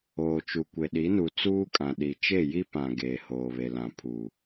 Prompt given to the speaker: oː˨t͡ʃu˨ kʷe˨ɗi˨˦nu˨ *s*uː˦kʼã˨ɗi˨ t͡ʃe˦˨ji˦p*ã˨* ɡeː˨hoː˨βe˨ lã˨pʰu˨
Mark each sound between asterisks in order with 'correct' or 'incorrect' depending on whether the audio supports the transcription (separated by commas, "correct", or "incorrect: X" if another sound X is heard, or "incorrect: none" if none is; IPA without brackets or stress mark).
incorrect: t͡s, correct